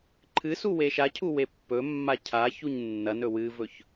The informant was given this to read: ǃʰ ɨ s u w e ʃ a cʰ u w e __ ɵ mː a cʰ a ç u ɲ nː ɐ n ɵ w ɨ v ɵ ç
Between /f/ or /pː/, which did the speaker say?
pː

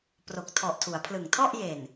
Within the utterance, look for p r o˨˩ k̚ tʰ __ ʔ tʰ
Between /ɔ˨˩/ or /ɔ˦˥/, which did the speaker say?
ɔ˨˩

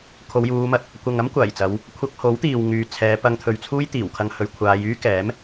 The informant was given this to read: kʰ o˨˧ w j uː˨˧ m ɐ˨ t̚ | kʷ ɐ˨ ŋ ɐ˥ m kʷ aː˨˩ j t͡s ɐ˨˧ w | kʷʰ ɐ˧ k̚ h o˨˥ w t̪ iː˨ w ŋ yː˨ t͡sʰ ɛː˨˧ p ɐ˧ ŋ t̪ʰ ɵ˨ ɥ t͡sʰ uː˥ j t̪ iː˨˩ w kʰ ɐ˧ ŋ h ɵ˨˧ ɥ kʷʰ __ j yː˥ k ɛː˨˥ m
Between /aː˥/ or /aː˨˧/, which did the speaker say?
aː˨˧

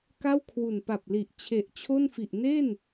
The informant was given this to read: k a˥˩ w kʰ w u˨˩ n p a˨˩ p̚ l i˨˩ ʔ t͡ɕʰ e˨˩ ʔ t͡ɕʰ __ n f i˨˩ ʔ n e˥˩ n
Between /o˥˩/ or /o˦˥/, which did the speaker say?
o˥˩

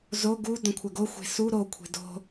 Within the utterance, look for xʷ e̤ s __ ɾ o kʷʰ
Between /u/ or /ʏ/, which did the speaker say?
u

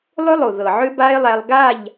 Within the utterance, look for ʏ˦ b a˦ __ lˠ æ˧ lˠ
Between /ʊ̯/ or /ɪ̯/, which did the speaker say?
ɪ̯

